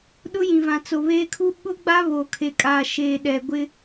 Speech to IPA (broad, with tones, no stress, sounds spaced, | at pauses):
ɗ ʊ˦ j ĩ˨ v ã˨ t͡s o˨ β eː˦ kʰ u˦ ɓ ʊ˦ ɡ͡b a˦ β oː˨ kʰ e˨ kʼ aː˨ ʃ eː˨ ɗ ɛ˨ ɡʷ ɪ˦